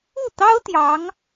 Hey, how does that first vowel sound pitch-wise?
falling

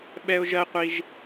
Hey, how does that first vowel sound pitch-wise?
high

